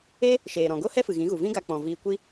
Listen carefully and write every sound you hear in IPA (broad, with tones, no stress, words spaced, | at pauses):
e˦ | ʃeː˨ ɾɔ̃˨ɡo˦hɛ˦fɨ˨ ɣĩ˨˦ɣu˨ vĩ˦ɡa˧ k͡pɔ̃˨viː˧kʷi˦